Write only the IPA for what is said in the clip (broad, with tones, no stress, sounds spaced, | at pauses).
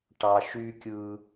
ʈ ɑ˨ ʃ yː˦ kʲ ɯː˦